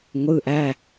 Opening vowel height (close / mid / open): close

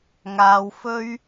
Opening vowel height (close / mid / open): open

